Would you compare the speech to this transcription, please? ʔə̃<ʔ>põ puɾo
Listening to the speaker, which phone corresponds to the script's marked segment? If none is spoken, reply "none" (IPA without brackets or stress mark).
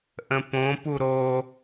none